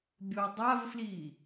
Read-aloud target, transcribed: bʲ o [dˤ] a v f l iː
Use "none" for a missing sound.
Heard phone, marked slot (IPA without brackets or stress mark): dˤ